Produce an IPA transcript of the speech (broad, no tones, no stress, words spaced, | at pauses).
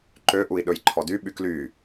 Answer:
ǃøʔui̯ ɗɵjǃʰɔdy ɓykly